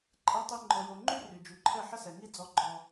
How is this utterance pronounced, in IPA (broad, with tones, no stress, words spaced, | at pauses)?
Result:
ǃʼɛ˨tˤi˨ ŋ͡ǃɔ˨jo˨ ŋ͡ǃy˦ ry˨ d͡ʒy˨ǃʰɛ˦˨ ħə˦sɛ˨ŋi˦ d͡zɔ˦ɡ͡ǃɔ˦